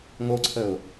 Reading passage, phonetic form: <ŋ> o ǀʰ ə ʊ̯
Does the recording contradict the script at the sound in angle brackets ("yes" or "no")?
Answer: no